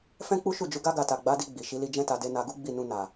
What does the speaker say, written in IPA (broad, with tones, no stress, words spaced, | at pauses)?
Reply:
fɛ̃˦k͡pu˦ʃu˦˨d͡ʒu˨˦ ɡa˦ɡa˧ta˨ ɡ͡ba˨˦di˧ ɡ͡bi˨ ʃi˨˦li˧d͡ʒɛ̃˦ta˧ de˧na˧ɡu˦ ɡ͡bi˦˨nũ˧ na˨